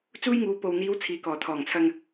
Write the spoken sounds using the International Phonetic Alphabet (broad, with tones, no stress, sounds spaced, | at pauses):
t͡s uː˥ j ŋ uː˨˧ p o˨ w n̪ iː˨˧ w t͡sʰ iː˨ k ɔː˨˩ t̪ʰ ɔː˨˩ ŋ t͡sʰ ɐ˧ ŋ